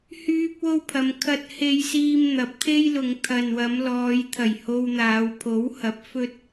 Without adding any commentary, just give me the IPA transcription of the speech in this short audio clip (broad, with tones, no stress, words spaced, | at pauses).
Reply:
hyː˥p̚wo˥wpʰɐ˨˧m kʰɐ˧t̚he˧jsiː˧m n̪ɐ˨˥p̚t̪ʰe˥jlʊ˨˧ŋ t̪ʰɐ˨nwɐ˨˧mlɔː˨˧j t̪ʰɐ˨˩jho˧wn̪aː˨˧w pʰo˨˥whɐ˨˥p̚ fɵ˥t̚